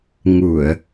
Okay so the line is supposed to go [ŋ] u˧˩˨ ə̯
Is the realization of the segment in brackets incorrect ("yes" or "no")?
no